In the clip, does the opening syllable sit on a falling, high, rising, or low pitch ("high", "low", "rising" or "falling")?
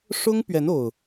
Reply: high